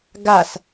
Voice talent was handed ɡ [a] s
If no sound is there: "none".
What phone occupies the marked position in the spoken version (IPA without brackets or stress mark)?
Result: a